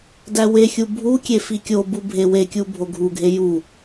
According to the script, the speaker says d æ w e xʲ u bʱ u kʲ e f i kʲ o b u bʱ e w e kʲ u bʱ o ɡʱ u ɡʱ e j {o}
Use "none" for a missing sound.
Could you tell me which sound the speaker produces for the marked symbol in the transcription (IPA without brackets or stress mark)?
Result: u